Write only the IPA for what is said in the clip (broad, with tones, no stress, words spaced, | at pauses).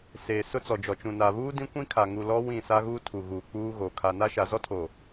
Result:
seː˨ sʊ˦t͡sɔ˨d͡ʒɔ˨ t͡ʃũ˨na˨βuː˦ dĩ˦kʷĩ˦kʰa˨ŋu˨ lɔ˦ wĩ˦˨sa˦ɣuː˦ tʰu˨ɣuː˨k͡puː˦ɣo˨ kʰa˨na˦ ʃa˨zɔ˦tʰo˨